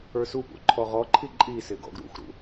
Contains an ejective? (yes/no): yes